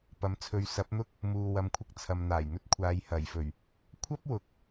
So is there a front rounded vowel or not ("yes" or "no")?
no